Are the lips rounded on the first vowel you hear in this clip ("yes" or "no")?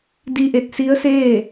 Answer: no